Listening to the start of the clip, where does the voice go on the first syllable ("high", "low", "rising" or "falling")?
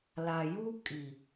low